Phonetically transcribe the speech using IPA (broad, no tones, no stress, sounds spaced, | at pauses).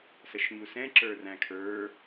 s ə ʃ ɲ u s ɛ̃ ǁ ə˞ r æ̃ kʰ ə˞